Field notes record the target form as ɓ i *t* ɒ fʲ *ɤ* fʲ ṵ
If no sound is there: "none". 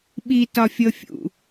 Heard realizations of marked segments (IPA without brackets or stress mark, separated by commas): t, ɤ